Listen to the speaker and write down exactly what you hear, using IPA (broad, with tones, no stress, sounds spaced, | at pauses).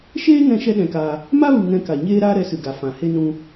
ʃ eː˦ ŋ ɛ̃˧ ʃ ɛ˦ ɗ ɛ̃˧ k aː˧ | m a˦ v ɨ˨ ŋ ɛ̃˧ k a˨ ɲ eː˦ ɾ aː˦ ɾ ɛ˧ s ɨ˨ ɡ a˨ f ã˨ h e˦ n ũ˧